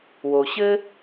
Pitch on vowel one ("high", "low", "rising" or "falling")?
low